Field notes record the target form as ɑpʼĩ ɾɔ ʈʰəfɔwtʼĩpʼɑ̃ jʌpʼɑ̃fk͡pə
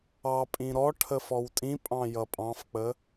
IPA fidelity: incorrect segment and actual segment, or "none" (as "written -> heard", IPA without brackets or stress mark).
none